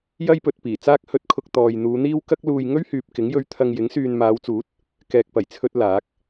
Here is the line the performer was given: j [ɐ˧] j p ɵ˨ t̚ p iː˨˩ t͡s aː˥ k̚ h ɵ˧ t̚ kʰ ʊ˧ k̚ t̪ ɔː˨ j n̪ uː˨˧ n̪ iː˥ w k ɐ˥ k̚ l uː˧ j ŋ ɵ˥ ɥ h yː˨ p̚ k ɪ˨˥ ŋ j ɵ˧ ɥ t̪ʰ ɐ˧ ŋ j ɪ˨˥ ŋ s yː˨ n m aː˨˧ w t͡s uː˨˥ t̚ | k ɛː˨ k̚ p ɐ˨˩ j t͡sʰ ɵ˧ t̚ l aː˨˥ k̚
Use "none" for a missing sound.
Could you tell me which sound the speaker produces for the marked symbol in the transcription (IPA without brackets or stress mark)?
ɐ˥